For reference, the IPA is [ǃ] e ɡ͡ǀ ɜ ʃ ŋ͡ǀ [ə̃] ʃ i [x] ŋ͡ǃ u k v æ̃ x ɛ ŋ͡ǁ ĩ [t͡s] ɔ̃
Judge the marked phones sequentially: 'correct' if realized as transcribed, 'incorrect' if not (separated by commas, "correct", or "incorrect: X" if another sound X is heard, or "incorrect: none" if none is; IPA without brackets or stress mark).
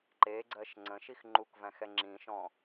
correct, correct, correct, incorrect: ʃ